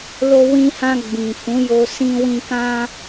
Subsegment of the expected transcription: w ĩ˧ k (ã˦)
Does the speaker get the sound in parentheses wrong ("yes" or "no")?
no